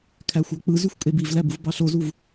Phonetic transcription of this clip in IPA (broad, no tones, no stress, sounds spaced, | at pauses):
kʰ æ xʷ ɑ k͡p ɯ z y xʷ kʼ e b i v l æ b u v b ɑ ɬ o z u v